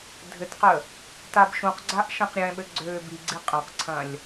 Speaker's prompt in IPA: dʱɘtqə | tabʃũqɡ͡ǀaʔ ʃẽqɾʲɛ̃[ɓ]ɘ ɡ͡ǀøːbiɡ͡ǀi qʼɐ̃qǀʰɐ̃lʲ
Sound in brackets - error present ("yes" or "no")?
no